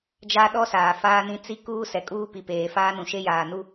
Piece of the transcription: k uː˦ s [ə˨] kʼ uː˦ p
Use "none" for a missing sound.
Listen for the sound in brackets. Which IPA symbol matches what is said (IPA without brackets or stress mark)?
ɛ˨